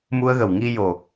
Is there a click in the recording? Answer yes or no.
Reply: no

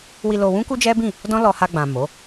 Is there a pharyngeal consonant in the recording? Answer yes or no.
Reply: no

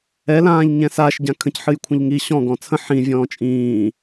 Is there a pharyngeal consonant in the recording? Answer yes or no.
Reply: yes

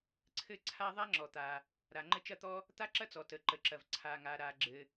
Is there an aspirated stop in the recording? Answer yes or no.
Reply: yes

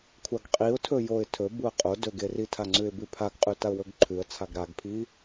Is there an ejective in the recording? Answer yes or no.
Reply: yes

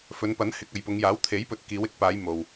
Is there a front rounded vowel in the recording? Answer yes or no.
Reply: no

